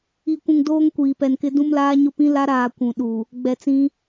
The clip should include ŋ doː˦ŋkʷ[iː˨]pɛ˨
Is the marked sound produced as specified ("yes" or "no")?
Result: yes